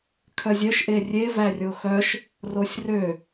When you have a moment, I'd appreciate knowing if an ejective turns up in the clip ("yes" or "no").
no